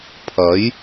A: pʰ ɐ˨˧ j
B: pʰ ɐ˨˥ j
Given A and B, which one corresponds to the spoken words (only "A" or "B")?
B